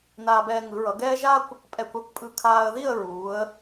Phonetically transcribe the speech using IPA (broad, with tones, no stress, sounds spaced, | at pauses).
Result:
n aː˧ b ɛː˧ ŋ ɯ˩˧ ɹ ʌ˩˧ ɡ ɛː˥ ʒ a˥ kʷ | pʼ ɛ˧ kʷ a˥˧ kʷ pʼ ɯ˧ kʰ aː˧ ə̯ ð i˥˧ ə̯ ɹ uː˩˧ ə̯